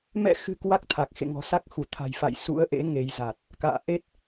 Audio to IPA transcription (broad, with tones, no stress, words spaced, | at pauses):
mɛ̰˧˨xɨ̤˨˩ kwa˦˥k̚t̪ʰa˨˩k̚xḛ˧˨ ŋɔ̤˨˩sa˦˥k̚xu˧˩ t̪ʰa̤˨˩jfa̰˧˨j sṵ˧˥ə̯ʔḛ˧˥ ŋe˨˦jza˨˩t̚ | ka̰ː˧˨ʔe˦˥t̚